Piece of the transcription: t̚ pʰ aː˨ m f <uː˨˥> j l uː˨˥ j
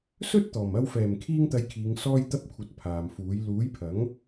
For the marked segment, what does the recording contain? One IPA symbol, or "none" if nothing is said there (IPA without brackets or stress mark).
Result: uː˨˥